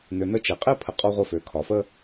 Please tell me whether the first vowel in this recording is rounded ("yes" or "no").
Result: yes